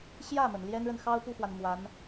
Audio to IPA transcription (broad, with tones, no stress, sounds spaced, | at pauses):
ɕ j ä˥˩ m ə˩ n l j ɛ˥ n ɻ ə˨ n x ɑ˥ ʊ̯ p u˥˩ x w a˩ n m w a˧˥ n